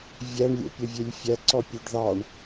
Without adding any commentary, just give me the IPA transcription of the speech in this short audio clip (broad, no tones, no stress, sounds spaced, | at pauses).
vʲ æ ɳ lʲ o̰ pʲ ə vʲ e lʲ fʲ æ ǀ ɔ pʲ ø ɖ ð ɑ ɳ